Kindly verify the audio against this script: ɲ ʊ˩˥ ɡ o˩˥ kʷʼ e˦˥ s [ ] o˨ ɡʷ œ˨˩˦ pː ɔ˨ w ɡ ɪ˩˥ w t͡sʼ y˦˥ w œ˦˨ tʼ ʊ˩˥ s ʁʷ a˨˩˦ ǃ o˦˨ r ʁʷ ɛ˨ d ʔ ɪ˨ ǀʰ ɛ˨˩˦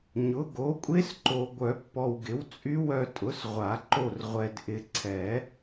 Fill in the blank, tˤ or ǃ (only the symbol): ǃ